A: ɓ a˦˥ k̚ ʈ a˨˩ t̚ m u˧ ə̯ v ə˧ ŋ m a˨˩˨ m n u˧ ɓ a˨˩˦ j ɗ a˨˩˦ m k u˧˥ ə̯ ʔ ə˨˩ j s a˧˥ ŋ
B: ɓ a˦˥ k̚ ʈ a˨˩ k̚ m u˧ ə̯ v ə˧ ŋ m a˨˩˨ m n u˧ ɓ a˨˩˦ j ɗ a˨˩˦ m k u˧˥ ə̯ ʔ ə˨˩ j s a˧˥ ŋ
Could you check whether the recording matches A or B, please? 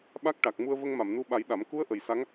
B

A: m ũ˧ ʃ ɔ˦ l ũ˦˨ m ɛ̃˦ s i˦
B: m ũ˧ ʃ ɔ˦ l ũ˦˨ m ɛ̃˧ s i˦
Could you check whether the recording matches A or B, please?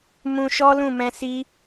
B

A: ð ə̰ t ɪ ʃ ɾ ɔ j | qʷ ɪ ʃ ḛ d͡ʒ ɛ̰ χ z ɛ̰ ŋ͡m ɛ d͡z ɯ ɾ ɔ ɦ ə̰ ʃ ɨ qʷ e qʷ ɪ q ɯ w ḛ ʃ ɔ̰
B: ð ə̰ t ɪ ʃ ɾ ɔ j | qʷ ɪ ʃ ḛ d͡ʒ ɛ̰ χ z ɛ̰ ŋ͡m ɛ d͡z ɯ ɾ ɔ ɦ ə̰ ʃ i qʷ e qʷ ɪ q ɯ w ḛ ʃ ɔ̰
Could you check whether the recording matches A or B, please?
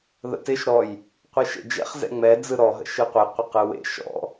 A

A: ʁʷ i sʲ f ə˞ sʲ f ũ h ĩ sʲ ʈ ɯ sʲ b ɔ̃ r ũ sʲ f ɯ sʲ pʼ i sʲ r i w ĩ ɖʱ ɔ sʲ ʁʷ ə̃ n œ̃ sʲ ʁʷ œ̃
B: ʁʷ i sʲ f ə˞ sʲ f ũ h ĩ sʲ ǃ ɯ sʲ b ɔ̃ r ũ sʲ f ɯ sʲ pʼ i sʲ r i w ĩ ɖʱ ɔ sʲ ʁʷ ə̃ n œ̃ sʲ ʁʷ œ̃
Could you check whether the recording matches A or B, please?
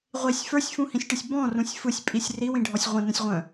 A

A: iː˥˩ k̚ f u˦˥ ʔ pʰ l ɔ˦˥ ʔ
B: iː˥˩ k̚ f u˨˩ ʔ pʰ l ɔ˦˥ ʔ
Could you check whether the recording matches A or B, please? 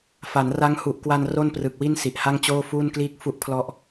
A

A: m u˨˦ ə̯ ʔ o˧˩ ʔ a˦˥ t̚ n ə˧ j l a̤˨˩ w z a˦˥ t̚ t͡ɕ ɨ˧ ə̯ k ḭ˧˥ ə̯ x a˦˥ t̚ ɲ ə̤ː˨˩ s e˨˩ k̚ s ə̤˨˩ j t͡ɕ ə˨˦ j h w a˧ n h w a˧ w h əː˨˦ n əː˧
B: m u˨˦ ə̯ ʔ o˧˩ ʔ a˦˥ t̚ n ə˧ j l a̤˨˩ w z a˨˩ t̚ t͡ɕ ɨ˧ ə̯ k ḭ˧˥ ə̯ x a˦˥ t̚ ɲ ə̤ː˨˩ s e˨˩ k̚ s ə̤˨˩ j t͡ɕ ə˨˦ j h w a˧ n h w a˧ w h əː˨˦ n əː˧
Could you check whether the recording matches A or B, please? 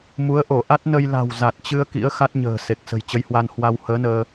B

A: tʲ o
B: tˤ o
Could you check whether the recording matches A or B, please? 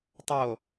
B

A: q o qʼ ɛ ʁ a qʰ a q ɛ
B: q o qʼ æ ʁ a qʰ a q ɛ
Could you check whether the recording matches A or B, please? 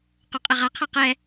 A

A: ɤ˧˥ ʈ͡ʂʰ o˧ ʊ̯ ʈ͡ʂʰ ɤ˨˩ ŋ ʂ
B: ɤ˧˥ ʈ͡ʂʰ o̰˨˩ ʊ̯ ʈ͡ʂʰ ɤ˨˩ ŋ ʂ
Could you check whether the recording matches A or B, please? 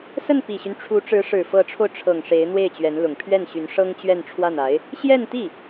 A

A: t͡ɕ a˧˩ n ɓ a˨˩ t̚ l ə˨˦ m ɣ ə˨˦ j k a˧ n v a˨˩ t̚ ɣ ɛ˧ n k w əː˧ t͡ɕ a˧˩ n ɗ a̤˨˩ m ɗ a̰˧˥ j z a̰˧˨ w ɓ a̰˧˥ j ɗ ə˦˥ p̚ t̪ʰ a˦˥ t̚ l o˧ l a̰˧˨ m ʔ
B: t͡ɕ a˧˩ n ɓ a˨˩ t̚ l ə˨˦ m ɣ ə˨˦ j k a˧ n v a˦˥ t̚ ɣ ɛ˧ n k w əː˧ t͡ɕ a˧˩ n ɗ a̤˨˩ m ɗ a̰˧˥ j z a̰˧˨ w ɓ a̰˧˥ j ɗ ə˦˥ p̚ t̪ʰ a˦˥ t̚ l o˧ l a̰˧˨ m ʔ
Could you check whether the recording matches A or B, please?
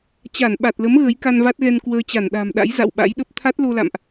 B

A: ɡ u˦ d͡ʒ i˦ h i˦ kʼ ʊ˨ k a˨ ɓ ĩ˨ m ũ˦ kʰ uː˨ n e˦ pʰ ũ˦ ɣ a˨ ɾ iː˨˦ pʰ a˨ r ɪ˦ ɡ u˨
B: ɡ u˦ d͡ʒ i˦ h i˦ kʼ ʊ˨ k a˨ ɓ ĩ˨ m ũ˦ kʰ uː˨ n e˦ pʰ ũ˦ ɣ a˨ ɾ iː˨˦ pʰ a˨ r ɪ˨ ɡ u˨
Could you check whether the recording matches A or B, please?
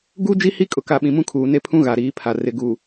B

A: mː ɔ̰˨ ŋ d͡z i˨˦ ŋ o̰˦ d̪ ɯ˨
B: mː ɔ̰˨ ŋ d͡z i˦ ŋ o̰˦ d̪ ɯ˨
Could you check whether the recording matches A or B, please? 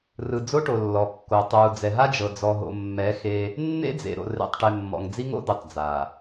B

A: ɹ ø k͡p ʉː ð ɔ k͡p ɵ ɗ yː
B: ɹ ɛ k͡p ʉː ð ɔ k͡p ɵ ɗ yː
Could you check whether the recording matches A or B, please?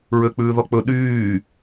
A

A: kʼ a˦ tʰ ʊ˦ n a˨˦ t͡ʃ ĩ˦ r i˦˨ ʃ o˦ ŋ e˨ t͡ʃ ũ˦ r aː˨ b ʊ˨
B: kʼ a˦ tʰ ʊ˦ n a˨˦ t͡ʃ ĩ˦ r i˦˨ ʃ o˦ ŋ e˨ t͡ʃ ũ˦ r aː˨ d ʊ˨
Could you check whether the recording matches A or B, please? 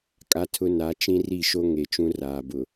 A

